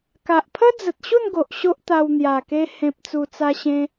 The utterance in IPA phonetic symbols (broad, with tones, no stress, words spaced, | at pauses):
ka˨ʔpʰə˦d͡zə˨t̚ ɕu˥˧nɡo˨ʔ ɕo˦ʔt̪a˧w n̪ja˨˩ke˧ hẽ˨p̚t͡su˨˩t͡sa˧ɕẽ˧